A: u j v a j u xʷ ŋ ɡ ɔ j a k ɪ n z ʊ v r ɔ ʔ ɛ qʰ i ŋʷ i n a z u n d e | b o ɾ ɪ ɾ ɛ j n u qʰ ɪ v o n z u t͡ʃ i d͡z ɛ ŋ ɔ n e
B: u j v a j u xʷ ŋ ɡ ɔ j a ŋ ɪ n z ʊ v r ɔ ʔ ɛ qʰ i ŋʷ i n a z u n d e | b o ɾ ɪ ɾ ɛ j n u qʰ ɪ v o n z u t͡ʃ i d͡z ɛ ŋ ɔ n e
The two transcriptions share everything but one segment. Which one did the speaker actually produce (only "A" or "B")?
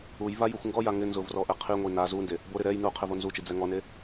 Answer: B